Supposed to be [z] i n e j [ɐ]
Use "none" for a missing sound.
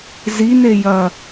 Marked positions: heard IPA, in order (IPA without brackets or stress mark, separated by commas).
z, ɐ